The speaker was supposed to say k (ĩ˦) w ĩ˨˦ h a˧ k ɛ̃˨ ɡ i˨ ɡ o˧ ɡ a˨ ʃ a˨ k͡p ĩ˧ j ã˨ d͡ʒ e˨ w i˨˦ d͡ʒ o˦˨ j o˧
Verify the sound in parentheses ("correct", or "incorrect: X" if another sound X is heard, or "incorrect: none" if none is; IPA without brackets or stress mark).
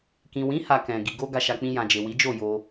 incorrect: ĩ˨